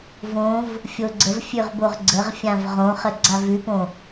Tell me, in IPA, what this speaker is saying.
võv | fʲoɡ͡ǀəvfʲʉʁ boʁɡ͡ǀəʁfʲãv ʁõχə ɡ͡ǀavʉpõ

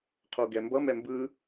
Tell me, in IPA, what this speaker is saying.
qʰoɡɛmbʌ mɛmbɯ

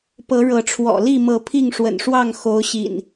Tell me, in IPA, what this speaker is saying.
pɤ˨˦ɻɤ˨˦ʈ͡ʂʰwɔ̰˨˩ li˥˨mɤ˨˦ pʰi˥˨ŋʂwə̰˨˩nʂwɑ˥˨ŋ xo˨˦ʊ̯ ɕḭ˨˩n

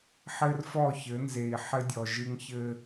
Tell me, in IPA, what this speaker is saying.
ħɘ˦rfɔ˦˨çɘ˨˦ nze˨i̯ħɘ˦dʲɔ˨ʒɨ˦ŋ çɘ˦

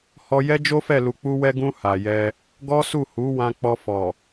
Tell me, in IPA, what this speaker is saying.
hɔ˧ jɛ˦d͡ʒo˦fɛ˦˨ lu˨k͡pu˧wɛ˧ɡũ˧ ha˨ jɛ˧ | ɡɔ˦su˦˨ hu˨˦ wã˧k͡pɔ˧fɔ˨

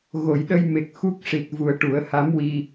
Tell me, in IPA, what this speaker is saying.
ɣo˨˩˨jɗə˧jme˨˩k̚ xu˦˥k̚ ʂi˨˩t̚vu˨˩ə̯ ʈu˨˩˦ə̯ha˧˥mwi˧

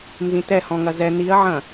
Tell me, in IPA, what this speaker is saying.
nzĩtɛhɔ̃ŋɐ zɛ niɐ̯ʕɐ̃

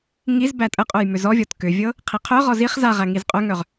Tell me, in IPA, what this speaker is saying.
ŋiz bætʼəqʼœj mʏzɔvʲɔt kʏvʲɤ | qʰiqʰœʁɔ ziχ zaʁæ ŋizqʼœŋœʁ

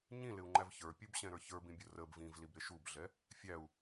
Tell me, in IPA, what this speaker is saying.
ɲĩlɪu̯ŋ͡ǃæv çə˞pʲubɕɛ̃ɾə˞ çə˞bĩbʲʊ rəb vĩvlibɾɪ ʃubɮɛ | fʲæu̯

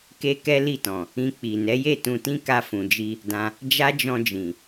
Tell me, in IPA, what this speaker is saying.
ke˦kɛ˦li˦˨tɔ̃˨ | ĩ˧k͡pi˨ nɛ˨˦je˦˨tũ˧tĩ˦ ka˧fũ˨d͡ʒi˧ | dã˧ | d͡ʒa˦d͡ʒɔ̃˧d͡ʒĩ˨

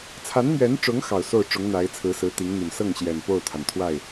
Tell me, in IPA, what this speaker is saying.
t͡sʰa˧˥nmɥɛ˧˥nʈ͡ʂʊ˧˥ŋ xɑ˨˩ʊ̯so˥˩ʊ̯ʈ͡ʂʊ˧˥ŋ n̪a˧˥ɪ̯t͡sʰɹ̩˧˥sɹ̩˧˥ t̪i˧˥ŋn̪y˨˩n sɤ˥˩ŋ ɕjɛ˨˩npo˥˩ʊ̯t̪ʰa˩n t̪ʰwa˥˩ɪ̯

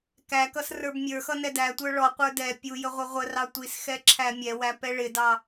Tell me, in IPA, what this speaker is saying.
kækʌs rə˞bmʲə˞xʌ nɛdætʷə˞ ɭɔqʷə˞ dɛ pʲujə ʁʷʌʁʷərɑ tʷisxɛ ǁʰæmʲɛwæ pɛɭɪdɑ

